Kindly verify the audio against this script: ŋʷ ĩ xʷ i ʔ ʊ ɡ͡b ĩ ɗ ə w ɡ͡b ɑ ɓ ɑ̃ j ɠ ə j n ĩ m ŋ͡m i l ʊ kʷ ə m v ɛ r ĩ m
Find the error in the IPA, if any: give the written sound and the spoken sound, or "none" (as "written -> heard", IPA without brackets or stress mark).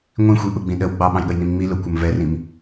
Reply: none